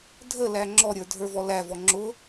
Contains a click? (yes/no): yes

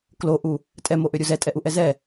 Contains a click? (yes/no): no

